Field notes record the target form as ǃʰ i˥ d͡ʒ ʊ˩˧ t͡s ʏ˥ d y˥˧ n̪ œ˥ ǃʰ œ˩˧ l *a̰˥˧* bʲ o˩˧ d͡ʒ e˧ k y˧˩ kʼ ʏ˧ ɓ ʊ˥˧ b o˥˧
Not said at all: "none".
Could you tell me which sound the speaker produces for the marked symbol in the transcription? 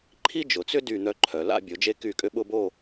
a̰˥˧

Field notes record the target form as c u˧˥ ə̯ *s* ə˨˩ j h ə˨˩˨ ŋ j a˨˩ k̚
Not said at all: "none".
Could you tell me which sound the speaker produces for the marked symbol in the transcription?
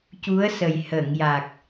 s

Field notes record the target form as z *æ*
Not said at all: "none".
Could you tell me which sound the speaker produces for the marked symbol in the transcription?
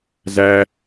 æ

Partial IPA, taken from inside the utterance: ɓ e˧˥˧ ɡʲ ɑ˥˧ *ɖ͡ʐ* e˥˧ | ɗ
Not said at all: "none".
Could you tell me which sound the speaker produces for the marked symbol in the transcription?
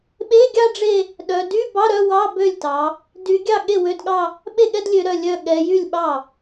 ɖ͡ʐ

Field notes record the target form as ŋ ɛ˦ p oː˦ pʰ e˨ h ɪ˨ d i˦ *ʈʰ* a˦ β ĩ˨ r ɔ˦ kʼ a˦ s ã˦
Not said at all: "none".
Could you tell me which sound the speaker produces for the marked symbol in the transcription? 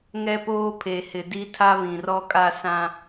tʰ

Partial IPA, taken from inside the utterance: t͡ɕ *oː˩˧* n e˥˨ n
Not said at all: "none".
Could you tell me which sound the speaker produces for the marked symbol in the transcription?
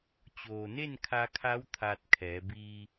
oː˩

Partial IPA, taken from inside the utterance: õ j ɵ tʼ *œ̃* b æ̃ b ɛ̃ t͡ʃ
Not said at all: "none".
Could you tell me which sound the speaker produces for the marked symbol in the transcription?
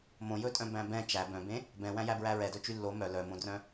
œ̃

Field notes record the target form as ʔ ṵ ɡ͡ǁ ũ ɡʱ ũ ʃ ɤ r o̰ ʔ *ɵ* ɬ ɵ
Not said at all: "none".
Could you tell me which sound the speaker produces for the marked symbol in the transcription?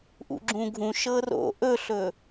ɵ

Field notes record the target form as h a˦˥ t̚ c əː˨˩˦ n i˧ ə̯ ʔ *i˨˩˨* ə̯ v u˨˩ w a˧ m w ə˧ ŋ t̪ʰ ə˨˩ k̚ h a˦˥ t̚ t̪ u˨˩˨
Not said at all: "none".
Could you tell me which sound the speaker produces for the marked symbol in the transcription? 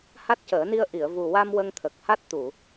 i˨˩˨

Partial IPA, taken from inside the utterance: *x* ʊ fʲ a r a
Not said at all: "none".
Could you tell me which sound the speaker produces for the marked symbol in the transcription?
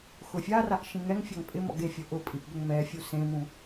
x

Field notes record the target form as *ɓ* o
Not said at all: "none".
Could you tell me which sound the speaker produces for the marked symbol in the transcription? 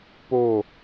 p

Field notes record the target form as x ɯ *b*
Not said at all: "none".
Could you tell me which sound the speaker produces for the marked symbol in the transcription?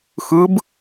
b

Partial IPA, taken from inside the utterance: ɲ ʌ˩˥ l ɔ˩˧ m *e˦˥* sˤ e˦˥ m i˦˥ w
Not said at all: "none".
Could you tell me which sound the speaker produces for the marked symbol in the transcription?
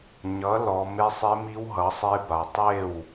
e˦˥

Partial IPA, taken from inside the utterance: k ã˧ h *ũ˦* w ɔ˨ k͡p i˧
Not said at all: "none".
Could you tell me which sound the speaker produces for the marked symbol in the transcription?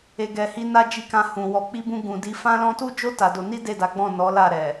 ũ˨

